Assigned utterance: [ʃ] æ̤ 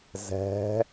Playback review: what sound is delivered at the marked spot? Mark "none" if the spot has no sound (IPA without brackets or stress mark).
z